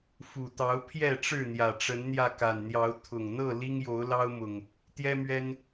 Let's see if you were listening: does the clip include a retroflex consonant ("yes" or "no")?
yes